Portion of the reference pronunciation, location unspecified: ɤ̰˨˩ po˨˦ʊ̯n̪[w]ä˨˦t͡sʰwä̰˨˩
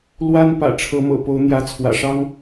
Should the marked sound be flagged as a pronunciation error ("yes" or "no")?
yes